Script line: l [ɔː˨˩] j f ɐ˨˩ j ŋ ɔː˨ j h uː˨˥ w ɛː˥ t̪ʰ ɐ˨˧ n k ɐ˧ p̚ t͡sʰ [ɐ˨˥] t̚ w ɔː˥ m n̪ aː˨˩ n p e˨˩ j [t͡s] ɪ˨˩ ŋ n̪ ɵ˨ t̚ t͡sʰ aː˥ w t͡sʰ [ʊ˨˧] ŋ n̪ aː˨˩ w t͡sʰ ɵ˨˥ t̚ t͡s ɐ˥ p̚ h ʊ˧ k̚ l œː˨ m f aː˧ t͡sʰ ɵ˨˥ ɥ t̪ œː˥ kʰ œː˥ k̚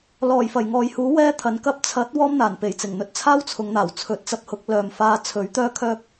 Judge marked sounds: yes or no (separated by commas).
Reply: yes, yes, yes, yes